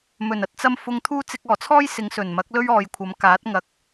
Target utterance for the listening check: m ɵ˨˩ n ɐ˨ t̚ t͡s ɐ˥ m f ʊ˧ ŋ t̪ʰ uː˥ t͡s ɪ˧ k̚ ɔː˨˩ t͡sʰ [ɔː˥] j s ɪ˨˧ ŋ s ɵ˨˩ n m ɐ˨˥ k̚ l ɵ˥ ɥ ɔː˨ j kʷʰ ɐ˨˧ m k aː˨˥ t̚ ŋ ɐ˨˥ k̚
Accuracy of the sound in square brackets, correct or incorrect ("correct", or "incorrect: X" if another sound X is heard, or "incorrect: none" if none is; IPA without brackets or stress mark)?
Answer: correct